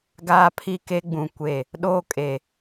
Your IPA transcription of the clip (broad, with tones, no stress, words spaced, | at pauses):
ɡaː˦pʰi˦ke˦ɡ͡bũ˨ kʷe˨ | ɗoː˦kʼe˨